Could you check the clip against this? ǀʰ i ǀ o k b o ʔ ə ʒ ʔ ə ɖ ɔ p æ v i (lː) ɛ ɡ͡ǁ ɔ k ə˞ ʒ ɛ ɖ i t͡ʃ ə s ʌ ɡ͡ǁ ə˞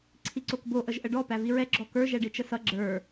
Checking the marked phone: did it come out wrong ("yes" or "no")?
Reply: yes